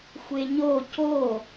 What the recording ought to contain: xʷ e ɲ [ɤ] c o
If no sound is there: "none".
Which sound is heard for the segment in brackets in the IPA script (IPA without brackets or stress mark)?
o